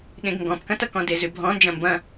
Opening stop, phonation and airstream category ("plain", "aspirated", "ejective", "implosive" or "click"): implosive